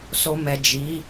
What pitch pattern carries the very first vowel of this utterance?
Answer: low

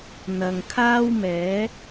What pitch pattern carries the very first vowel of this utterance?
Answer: low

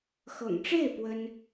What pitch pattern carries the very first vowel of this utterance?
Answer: low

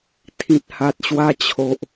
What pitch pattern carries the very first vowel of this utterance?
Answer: low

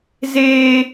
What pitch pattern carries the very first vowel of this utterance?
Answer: high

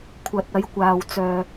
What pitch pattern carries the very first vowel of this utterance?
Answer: low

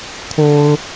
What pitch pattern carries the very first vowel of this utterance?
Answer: high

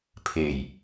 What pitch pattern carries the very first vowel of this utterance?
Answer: low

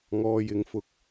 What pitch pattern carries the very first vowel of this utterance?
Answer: low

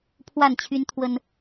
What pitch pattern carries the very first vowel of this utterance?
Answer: falling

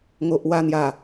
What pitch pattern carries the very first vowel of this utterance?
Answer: low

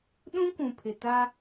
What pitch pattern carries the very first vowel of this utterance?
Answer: high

